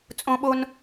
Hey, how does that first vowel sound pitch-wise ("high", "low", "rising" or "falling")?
high